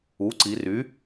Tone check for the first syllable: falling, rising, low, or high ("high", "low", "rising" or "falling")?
rising